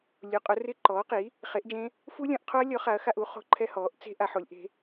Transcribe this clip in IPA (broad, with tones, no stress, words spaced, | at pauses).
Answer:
lʲu˨˥ qʼʊ˨˥rɪ˥˧ ǃɔː˨˥qi˨˥ | χe˨˥ʔd͡ʒẽ˦˥ | fu˦˥lʲɔ̃˨˥ʔqʰo˦˥ɐ̯lʲɔ˨˥ χa˨˥ɐ̯xa˥˧ʔu˨˥ χo̤˦˥ǃʰɛ˦˥hɔː˨˥ʔ t͡se̤˦˥ ʔa˨˥ħo˨˥lʲʔe̤˦˥